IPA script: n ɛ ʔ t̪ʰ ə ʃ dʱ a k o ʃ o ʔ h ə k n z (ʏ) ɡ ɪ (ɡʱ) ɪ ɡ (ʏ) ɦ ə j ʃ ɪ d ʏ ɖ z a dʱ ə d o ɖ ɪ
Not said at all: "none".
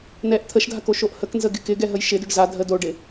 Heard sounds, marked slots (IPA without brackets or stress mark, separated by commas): ə, k, ɛ